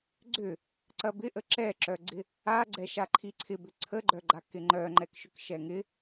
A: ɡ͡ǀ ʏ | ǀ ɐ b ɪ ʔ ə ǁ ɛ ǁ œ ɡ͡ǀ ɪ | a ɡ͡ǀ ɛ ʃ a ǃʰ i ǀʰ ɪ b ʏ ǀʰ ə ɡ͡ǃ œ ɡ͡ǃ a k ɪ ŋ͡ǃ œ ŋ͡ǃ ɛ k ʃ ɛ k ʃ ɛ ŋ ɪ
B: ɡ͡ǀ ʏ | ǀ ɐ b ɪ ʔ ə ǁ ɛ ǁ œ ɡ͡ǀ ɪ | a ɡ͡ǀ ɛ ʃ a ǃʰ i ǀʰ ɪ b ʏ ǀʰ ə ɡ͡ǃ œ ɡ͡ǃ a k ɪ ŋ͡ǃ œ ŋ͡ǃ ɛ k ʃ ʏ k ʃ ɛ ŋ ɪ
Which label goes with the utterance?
B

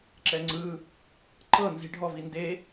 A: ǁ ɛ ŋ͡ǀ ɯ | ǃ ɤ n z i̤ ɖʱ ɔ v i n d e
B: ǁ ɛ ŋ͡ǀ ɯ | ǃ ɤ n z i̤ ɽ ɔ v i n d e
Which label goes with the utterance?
A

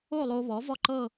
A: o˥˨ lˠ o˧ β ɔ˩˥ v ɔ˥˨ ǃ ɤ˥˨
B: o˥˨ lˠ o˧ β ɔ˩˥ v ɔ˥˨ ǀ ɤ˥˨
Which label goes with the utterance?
A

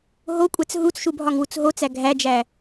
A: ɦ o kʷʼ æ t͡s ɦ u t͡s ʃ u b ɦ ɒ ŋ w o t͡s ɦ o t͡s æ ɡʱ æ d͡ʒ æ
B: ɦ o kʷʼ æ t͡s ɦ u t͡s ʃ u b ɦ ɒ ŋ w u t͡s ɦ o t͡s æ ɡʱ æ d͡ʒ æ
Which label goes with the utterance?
B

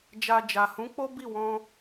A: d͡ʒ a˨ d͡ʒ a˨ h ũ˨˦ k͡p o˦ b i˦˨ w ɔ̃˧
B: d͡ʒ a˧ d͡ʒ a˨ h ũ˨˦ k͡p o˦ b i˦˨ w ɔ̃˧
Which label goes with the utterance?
A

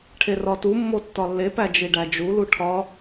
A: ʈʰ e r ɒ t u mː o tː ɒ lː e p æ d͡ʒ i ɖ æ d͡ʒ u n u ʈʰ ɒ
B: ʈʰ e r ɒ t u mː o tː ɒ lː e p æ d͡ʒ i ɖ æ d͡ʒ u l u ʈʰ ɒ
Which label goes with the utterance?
B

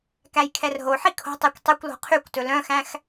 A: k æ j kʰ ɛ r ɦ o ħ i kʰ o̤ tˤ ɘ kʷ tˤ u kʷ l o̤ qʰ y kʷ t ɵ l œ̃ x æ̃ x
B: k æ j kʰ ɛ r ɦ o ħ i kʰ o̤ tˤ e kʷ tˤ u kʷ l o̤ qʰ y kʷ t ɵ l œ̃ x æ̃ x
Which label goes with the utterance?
B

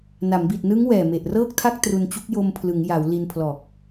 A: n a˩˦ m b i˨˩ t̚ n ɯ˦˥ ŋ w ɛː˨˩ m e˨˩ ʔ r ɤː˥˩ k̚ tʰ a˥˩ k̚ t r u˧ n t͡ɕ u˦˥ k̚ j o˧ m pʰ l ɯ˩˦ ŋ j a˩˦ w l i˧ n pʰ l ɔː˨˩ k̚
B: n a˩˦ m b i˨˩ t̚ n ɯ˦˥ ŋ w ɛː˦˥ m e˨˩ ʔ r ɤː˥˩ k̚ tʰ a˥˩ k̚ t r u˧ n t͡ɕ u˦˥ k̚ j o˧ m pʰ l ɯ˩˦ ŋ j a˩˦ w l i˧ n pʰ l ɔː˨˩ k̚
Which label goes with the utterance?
A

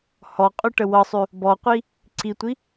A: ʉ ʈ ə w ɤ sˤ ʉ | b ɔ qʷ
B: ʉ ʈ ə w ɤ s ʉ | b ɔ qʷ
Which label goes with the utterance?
A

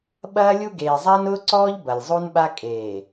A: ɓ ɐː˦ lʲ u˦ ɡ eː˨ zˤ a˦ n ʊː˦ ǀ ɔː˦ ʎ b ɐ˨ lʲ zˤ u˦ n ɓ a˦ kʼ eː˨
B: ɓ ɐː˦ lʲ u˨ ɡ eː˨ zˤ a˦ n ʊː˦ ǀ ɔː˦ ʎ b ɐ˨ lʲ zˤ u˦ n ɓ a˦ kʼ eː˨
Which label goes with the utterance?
A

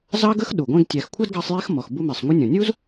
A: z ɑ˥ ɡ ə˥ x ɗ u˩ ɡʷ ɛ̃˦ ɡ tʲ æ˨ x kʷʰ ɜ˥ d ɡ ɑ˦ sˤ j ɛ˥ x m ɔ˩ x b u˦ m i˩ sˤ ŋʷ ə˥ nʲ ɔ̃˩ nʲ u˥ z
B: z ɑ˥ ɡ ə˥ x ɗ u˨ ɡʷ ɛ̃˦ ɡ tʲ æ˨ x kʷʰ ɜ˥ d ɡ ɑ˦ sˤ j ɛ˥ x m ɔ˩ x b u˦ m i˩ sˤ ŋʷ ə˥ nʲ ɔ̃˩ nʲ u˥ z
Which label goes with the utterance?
A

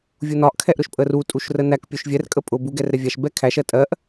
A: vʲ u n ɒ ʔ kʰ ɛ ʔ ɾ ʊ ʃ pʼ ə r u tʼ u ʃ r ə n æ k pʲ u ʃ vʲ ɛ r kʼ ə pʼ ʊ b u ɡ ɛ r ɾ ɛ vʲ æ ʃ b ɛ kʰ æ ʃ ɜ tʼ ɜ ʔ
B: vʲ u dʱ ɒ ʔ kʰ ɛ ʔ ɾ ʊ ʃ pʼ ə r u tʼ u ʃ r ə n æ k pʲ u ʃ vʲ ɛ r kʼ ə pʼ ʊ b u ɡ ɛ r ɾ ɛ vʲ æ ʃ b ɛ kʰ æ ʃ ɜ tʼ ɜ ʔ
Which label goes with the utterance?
A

